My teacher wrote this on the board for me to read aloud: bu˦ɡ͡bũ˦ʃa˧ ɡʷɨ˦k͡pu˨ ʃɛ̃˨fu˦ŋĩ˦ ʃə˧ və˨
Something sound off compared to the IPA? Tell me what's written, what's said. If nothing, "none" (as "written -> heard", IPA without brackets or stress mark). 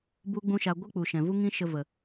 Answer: f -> v